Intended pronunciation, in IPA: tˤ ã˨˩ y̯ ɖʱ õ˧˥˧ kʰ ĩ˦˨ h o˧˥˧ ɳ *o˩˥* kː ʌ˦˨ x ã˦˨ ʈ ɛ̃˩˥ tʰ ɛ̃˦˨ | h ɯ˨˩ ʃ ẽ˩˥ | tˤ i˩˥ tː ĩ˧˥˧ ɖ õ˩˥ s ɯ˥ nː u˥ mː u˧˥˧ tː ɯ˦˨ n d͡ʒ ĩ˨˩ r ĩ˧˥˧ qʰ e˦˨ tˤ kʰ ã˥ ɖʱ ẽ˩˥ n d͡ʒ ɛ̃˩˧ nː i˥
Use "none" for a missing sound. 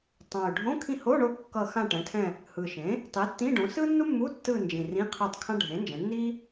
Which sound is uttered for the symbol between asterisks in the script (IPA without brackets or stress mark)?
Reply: o˦˨